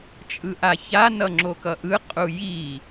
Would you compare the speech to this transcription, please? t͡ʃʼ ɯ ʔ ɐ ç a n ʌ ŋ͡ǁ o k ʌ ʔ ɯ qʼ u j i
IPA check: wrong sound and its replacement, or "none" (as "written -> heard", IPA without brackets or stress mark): ɐ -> a